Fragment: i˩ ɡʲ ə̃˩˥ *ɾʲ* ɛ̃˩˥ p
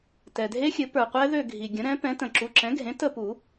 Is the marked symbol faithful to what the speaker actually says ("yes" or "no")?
no